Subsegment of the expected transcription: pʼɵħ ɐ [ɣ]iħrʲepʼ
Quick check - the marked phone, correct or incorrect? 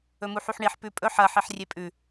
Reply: incorrect: ħ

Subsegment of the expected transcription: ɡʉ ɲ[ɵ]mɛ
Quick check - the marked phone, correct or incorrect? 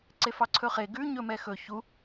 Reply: correct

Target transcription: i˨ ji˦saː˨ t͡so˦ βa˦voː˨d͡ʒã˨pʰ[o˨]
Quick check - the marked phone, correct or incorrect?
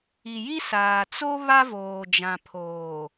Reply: incorrect: oː˨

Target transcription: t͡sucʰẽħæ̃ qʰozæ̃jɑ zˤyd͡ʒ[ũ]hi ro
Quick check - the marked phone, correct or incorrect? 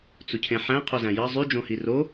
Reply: incorrect: õ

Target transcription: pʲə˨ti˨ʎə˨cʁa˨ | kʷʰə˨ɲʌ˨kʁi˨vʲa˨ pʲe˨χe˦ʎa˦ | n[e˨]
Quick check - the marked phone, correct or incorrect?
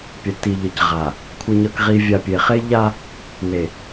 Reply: correct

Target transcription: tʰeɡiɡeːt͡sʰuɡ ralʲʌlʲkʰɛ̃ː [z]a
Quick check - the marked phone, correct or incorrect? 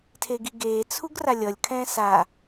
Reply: incorrect: s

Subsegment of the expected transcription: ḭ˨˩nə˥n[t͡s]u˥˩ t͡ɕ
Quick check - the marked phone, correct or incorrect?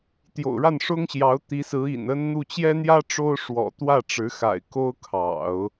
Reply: incorrect: n̪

